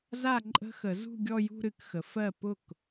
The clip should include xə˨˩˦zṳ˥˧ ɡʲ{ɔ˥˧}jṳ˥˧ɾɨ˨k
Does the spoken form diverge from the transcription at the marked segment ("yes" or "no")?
no